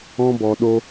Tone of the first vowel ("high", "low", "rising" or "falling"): high